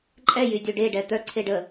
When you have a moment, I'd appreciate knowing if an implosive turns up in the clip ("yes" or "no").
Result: no